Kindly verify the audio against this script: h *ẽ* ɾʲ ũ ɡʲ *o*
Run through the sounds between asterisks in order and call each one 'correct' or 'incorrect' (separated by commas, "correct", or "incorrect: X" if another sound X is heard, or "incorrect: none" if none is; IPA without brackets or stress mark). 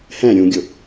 incorrect: ɛ̃, correct